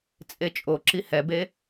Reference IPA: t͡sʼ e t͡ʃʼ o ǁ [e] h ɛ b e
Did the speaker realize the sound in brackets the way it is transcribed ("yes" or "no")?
no